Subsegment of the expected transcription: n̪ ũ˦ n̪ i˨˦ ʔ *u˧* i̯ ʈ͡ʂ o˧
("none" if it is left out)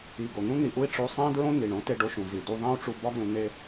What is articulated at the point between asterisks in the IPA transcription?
u˦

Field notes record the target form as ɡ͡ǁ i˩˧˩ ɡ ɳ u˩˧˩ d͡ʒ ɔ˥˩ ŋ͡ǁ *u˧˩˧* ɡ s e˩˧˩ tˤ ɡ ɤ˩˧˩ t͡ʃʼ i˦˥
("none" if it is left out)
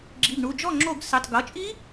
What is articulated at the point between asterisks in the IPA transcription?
o˧˩˧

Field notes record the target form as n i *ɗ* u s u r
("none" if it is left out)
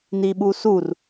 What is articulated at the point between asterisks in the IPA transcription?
ɓ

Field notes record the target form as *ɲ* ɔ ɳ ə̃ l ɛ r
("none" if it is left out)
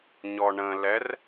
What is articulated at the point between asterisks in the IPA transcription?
ɲ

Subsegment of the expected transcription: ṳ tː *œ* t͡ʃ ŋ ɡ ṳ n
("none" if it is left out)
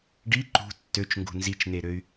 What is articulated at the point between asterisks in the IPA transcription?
ø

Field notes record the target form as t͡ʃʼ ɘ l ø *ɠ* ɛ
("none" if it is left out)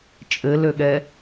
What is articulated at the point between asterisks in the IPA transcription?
ɠ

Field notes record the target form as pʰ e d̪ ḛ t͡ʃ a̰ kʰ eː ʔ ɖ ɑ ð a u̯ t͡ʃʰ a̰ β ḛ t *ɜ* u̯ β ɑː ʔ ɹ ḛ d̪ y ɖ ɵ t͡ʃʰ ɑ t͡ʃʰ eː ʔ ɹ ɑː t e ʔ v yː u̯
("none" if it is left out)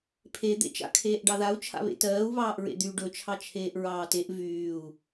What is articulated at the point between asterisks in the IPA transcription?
ɜː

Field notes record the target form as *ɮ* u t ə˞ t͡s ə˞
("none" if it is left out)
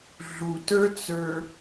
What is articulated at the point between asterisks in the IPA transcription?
ɮ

